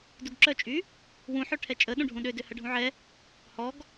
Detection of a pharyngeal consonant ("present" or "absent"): present